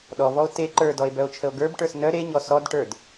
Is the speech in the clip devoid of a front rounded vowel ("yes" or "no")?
no